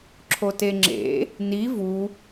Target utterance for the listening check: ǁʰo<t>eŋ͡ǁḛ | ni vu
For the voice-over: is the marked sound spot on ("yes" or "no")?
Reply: yes